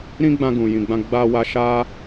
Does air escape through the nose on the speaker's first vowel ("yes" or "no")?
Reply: yes